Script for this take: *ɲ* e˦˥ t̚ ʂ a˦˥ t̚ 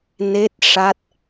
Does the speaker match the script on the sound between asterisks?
no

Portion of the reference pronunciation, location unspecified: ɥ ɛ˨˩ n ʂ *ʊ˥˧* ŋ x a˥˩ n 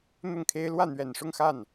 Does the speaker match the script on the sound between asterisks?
yes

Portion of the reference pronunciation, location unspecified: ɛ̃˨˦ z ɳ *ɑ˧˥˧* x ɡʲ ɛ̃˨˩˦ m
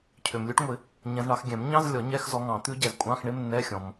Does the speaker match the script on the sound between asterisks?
no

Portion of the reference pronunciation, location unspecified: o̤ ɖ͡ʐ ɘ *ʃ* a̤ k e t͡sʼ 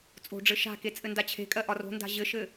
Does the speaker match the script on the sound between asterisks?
yes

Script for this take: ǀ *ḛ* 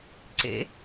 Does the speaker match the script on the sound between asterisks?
yes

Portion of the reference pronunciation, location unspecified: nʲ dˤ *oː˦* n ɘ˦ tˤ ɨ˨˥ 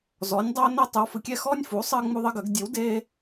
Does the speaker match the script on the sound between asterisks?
no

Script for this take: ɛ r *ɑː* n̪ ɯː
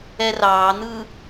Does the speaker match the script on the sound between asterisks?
yes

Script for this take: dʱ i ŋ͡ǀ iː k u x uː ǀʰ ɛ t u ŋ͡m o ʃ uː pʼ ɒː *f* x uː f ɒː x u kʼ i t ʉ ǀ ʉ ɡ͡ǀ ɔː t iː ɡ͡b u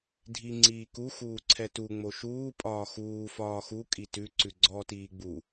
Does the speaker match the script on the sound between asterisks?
no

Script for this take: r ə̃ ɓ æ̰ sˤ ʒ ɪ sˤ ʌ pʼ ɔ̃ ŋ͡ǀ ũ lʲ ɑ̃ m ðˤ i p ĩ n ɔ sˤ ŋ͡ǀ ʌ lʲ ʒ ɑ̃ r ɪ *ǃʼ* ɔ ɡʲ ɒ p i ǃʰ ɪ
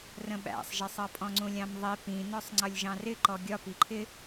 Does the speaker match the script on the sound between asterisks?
no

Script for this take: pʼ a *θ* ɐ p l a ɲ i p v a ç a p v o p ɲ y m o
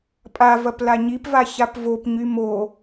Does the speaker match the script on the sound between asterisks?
no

